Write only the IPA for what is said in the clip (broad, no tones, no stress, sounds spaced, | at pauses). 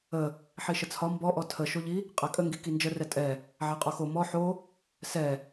ə | ħ i ʃ ə t͡sʰ ɒ m b ɔ ʔ ɔ tʰ ə ʃ o ʎ i | qʼ æ kʼ ə ŋ ɡ i k i n d͡ʒ ə r ɛ tʼ ɛ | ʕ æ qʼ o x o m ɔ ħ o | s ɛ